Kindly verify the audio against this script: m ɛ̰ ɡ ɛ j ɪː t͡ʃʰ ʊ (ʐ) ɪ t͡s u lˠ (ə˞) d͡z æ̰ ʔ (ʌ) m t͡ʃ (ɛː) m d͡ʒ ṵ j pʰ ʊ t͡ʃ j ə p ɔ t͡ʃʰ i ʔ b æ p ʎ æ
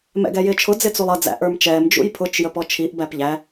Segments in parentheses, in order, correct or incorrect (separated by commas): incorrect, incorrect, incorrect, correct